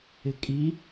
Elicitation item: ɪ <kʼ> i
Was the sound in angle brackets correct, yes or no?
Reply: yes